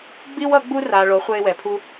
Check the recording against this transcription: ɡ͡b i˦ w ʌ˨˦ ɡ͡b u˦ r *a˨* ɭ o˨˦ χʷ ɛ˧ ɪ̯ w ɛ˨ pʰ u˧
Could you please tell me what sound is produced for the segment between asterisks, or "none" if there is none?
a˨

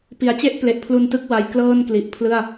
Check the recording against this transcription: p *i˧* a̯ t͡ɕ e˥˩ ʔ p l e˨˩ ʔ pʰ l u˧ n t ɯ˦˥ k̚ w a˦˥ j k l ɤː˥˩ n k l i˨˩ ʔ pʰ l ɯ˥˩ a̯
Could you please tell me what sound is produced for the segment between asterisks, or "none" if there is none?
i˩˦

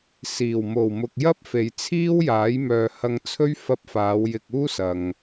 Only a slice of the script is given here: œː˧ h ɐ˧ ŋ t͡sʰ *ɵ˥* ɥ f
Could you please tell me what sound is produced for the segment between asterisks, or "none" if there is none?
ɵ˥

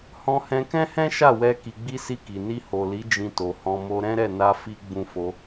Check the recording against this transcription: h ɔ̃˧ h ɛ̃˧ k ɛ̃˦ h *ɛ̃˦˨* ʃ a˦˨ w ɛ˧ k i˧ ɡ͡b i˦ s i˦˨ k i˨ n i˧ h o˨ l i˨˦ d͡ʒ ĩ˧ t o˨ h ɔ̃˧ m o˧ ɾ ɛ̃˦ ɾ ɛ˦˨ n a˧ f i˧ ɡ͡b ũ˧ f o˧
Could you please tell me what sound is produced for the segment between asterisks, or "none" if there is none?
ɛ̃˦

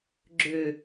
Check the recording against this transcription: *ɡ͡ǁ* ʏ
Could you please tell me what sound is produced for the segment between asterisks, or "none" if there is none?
ɡ͡ǁ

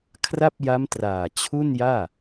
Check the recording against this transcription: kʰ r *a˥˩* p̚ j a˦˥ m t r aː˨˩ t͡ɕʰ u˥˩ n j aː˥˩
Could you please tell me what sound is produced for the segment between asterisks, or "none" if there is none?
a˥˩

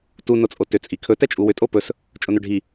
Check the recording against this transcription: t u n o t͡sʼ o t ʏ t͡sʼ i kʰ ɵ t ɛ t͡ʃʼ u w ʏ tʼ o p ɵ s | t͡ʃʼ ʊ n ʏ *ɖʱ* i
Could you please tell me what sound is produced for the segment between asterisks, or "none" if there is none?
ɖʱ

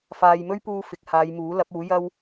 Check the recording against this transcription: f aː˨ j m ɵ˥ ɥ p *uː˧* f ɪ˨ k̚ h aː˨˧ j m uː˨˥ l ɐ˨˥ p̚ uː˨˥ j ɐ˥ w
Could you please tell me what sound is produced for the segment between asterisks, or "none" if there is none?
uː˧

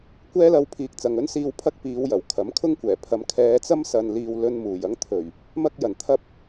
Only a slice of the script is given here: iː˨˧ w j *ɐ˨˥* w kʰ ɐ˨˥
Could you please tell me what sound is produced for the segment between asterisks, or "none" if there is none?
ɐ˨˩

